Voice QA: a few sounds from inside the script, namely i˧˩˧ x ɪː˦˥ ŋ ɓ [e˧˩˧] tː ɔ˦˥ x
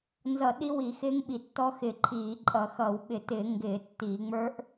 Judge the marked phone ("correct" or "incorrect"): incorrect